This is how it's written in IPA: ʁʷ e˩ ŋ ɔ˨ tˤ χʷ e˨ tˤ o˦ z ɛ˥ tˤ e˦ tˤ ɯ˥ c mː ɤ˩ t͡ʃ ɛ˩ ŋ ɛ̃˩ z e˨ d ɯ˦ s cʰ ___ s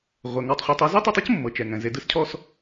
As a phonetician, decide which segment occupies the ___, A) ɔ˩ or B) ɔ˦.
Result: B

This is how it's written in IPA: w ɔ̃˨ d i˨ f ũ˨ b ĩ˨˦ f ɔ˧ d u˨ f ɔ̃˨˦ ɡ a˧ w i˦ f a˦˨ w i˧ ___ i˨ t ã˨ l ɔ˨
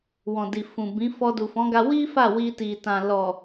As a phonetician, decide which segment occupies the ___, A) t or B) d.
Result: A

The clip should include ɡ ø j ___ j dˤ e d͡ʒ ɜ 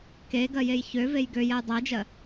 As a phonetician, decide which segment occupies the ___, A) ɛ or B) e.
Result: A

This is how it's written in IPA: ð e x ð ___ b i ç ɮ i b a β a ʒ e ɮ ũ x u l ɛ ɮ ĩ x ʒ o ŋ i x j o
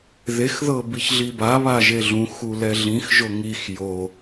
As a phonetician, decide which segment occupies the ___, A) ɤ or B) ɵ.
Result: A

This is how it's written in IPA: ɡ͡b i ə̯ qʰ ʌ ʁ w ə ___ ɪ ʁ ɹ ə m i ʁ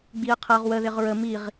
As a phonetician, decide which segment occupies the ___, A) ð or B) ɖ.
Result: A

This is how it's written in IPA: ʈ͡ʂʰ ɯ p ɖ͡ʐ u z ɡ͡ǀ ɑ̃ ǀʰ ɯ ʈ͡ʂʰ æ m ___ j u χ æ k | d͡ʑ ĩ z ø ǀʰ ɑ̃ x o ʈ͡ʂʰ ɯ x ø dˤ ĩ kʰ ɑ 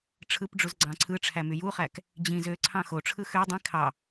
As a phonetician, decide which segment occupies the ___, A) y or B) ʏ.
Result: A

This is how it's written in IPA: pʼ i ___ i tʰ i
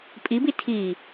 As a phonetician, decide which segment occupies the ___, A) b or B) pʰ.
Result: A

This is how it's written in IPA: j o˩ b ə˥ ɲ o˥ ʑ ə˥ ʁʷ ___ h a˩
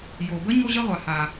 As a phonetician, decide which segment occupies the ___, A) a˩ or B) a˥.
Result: A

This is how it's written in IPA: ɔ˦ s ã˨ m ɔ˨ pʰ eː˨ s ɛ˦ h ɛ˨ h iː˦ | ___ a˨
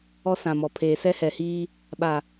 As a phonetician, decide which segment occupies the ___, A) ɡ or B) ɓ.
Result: B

